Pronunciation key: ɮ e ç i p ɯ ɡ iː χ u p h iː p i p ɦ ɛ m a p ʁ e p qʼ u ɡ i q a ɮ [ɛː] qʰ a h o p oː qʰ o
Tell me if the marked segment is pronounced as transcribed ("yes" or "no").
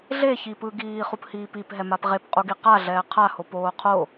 yes